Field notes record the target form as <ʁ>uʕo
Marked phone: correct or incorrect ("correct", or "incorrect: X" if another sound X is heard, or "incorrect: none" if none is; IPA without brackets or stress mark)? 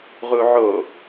correct